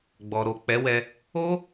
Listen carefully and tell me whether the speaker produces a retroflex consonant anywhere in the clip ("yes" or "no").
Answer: no